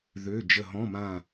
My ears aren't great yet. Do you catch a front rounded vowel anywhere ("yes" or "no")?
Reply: yes